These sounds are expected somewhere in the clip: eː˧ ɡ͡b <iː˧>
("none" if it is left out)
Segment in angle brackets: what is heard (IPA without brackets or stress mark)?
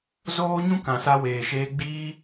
iː˧